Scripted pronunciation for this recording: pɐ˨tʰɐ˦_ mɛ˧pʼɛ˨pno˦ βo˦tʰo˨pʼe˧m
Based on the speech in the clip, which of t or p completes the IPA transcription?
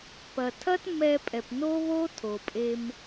t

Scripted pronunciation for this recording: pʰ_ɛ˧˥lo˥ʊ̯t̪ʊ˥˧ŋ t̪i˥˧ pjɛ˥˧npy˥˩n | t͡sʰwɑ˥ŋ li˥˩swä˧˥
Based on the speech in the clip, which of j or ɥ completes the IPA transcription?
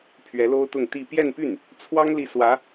ɥ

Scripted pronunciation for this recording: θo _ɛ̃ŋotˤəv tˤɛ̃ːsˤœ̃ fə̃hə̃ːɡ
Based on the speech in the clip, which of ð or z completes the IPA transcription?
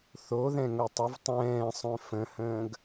ð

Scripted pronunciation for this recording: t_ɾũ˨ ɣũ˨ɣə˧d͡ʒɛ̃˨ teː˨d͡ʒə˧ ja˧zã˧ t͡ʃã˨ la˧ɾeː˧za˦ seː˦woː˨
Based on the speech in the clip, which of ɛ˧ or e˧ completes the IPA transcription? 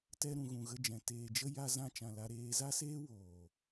ɛ˧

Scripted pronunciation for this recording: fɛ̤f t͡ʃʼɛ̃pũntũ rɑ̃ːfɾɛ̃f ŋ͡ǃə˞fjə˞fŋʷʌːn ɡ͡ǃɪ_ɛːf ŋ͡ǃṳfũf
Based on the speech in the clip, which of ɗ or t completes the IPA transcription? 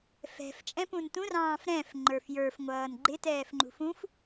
t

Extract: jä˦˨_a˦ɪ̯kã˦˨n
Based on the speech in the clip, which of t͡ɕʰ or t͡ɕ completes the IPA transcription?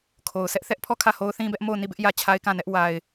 t͡ɕʰ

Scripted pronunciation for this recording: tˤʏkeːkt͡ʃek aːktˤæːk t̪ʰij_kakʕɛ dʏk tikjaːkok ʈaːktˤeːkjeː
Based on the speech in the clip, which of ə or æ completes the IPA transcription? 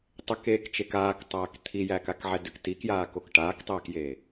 æ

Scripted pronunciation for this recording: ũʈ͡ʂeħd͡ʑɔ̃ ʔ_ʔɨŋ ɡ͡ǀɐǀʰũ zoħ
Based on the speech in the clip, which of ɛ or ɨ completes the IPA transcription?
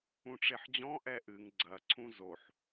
ɛ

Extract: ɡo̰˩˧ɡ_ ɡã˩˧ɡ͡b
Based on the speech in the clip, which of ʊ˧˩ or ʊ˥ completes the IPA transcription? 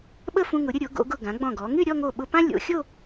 ʊ˧˩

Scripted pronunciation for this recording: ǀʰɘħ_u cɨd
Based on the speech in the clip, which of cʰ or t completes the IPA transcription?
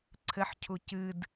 cʰ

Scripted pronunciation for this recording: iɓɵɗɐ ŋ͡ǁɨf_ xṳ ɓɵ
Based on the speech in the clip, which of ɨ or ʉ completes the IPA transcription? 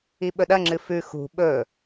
ʉ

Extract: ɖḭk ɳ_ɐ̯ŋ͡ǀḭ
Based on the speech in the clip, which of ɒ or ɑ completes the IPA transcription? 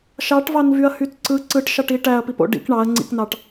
ɑ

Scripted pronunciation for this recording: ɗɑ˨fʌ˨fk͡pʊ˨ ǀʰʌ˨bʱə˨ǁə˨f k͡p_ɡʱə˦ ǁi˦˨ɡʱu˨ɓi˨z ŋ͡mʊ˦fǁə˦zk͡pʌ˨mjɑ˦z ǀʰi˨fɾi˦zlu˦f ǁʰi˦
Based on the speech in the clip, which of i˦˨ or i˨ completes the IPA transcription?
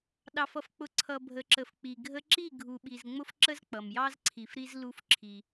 i˨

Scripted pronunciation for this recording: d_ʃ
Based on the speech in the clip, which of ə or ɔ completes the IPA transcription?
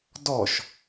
ɔ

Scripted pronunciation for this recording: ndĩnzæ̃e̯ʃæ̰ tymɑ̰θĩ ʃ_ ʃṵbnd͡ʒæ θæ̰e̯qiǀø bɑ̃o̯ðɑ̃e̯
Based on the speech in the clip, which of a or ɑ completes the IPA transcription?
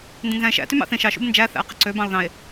ɑ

